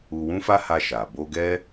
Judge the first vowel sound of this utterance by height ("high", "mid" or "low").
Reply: high